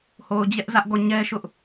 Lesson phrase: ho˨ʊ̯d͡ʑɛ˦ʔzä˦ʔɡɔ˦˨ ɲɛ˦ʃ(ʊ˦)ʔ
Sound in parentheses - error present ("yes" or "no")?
no